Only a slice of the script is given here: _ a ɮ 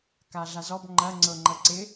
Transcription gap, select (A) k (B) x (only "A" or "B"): A